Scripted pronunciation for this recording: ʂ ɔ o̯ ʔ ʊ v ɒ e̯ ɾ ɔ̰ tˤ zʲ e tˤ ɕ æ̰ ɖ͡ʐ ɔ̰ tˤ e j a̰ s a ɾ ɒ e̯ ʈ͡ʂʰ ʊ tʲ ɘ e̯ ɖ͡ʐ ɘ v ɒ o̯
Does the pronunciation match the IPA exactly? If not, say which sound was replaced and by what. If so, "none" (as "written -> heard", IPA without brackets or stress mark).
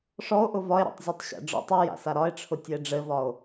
none